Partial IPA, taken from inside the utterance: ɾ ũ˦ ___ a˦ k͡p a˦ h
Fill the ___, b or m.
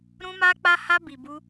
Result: m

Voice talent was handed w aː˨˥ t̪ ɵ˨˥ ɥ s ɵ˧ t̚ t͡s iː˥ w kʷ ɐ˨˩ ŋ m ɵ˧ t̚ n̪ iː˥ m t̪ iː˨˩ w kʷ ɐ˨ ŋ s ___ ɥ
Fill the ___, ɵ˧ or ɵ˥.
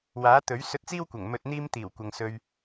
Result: ɵ˧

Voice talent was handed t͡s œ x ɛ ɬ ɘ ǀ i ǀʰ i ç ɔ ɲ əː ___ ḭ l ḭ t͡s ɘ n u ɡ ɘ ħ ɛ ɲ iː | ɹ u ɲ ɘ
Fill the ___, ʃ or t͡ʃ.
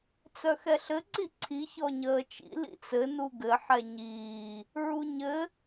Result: t͡ʃ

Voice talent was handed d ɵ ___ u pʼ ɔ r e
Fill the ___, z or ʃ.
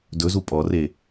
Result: z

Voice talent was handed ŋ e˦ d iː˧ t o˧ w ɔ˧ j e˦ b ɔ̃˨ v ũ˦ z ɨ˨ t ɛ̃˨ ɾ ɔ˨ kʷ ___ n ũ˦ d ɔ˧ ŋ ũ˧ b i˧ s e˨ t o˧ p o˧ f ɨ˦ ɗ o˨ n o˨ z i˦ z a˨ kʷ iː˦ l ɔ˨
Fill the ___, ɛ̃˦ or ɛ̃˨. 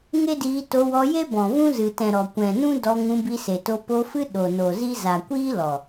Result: ɛ̃˨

